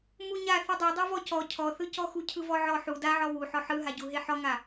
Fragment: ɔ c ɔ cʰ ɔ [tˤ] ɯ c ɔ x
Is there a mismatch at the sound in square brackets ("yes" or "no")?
yes